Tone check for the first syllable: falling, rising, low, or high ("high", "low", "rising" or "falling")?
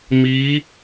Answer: rising